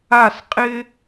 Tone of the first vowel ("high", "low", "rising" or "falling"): falling